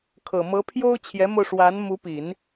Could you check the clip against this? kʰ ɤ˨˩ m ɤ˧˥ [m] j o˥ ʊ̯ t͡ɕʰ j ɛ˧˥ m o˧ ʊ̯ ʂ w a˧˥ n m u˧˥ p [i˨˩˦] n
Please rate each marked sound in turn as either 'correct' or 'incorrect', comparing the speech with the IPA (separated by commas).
incorrect, correct